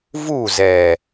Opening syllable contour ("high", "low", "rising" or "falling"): falling